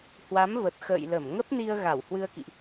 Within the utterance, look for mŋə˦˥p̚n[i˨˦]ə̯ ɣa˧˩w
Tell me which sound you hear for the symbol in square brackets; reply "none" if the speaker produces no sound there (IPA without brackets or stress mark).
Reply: i˧